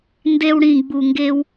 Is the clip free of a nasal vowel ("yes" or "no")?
no